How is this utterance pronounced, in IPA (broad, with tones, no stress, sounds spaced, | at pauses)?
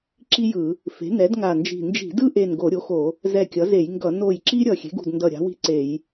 ǁ i˥ j ɯ˧˩˧ | f e̤˩˥ n ɛ˩˥ d ŋ a˧˩ n d͡ʒ i̤˧˩ n d͡ʒ i̤˧˩˧ d ɯ˥ ʔ e˧˩ n ɡ o˧˩˧ ɾʲ o˩˥ x o˧˩˧ | z ɛ˧˩ kʲ ʌ˩˥ z e˧˩˧ j ŋ ɡ ʌ˧˩˧ n o˧˩ j ǁ i˥ ɾʲ ʌ˧˩ xʲ e̤˩˥ ɡ ṳ˧˩ d n d ʌ˧˩ ɾʲ a̤˩˥ w i̤˥ ǀ e˧˩˧ j